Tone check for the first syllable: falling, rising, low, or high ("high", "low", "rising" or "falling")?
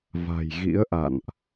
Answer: low